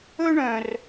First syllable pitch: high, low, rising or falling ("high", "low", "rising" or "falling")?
high